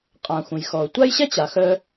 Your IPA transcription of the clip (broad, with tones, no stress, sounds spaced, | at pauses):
qʼ ã˨ xʷ ə̃˨ j x ɔ˨ ʊ̯ tʷ a˥ j ɕ ɛ˥ t͡ɕ a˨ x œ˥